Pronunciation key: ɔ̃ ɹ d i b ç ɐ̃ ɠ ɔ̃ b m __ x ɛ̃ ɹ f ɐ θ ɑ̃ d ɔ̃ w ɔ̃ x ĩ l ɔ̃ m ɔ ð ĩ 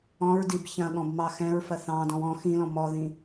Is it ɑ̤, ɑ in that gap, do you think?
ɑ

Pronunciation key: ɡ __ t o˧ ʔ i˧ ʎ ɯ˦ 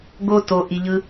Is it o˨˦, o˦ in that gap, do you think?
o˦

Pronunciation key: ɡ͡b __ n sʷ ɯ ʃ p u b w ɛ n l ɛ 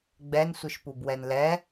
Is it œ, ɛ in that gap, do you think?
ɛ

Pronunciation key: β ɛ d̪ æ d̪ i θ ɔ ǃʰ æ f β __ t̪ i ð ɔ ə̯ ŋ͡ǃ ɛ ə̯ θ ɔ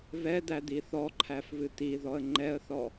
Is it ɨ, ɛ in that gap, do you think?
ɨ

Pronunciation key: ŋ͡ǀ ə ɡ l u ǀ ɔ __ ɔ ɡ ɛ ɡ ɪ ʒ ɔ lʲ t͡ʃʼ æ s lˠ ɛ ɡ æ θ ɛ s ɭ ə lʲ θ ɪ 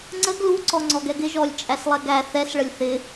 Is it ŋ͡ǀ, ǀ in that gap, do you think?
ŋ͡ǀ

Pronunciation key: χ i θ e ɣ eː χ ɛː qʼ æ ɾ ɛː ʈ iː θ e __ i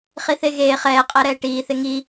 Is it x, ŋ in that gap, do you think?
ŋ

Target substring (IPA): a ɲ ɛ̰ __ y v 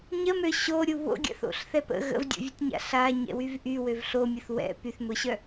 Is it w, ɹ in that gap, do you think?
w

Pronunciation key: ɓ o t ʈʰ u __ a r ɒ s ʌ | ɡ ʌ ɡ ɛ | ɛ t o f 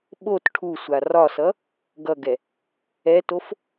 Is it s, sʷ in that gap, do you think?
sʷ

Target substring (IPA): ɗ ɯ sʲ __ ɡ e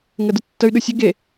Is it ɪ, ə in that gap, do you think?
ə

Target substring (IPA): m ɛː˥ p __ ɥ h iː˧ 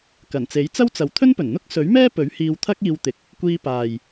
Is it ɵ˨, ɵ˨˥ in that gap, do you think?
ɵ˨˥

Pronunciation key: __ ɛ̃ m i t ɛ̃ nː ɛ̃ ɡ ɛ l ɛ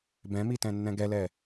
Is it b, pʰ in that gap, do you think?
b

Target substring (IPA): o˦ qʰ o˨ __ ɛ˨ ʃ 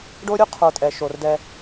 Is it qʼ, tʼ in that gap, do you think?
tʼ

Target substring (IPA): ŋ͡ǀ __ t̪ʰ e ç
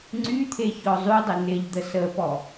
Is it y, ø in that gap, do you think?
y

